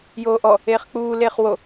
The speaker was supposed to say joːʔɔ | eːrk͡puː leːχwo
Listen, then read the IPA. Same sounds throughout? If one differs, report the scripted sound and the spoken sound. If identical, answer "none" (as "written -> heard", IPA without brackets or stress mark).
r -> χ